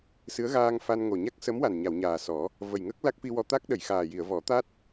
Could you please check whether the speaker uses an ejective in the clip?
no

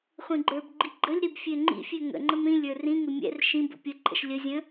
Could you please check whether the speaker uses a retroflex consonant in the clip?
no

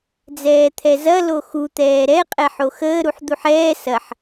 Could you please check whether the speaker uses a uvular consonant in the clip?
yes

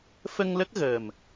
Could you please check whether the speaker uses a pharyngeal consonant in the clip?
no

